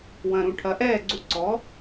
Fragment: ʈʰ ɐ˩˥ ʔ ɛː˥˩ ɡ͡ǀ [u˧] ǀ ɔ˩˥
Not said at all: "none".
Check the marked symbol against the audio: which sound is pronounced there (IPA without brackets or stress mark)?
u˧